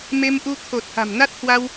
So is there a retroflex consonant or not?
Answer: no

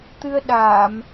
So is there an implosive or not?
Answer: yes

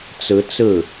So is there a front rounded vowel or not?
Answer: no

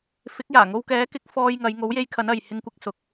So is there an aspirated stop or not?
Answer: yes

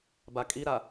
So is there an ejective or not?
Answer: yes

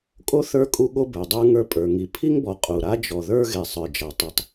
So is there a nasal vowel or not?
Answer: no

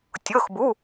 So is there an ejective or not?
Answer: no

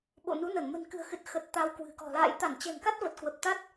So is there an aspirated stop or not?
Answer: no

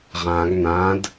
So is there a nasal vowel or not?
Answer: yes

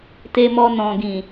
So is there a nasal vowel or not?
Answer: yes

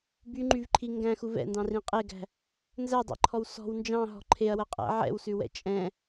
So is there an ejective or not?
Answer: yes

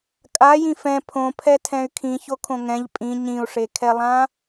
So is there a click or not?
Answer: no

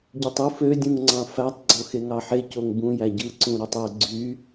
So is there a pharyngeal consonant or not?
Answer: yes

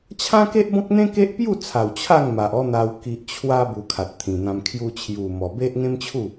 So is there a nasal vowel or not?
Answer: yes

